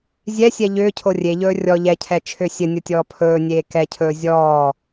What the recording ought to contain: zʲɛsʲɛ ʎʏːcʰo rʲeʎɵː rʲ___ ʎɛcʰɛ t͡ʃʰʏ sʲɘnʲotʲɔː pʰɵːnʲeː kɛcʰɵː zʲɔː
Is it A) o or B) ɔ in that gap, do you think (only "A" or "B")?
B